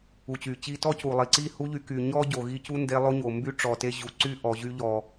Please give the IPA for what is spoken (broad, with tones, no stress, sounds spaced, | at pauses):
u˨ t͡ɕ y˨ t͡ɕ i˧ t ɔ˦ c u˨ lˠ i˨ ǀ i˦˨ h u˦ ʎ y˧ k y˨ ɲ ɔ˦ ɟ o˨ ɣ i˧ c u˦ n d e˧ lˠ o˦ ɲ o˨ m b y˦ ʈ͡ʂ ɔ˨ t e˧ ʑ u˨ ǀ y˦˨ ʔ ɔ˨ ʑ y˧ ʎ ɔ˨